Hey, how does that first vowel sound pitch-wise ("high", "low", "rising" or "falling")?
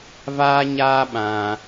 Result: high